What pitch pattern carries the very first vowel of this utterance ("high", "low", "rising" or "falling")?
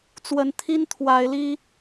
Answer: rising